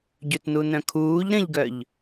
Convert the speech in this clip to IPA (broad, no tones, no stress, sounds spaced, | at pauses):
ɟ ø t n u n œ̃ kʰ uː ʎ ɾ ə̃ ʎ ɡ œ ʎ